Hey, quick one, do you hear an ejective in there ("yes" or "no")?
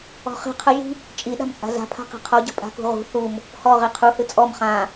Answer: yes